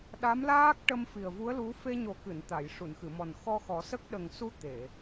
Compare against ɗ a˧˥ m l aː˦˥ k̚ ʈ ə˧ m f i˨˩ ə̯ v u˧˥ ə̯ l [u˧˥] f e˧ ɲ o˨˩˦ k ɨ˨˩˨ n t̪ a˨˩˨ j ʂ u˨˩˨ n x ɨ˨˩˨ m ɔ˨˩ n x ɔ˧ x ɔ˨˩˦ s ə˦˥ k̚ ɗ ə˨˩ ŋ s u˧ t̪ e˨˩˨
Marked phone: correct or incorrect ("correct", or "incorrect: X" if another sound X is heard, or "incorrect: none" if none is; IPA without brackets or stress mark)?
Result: correct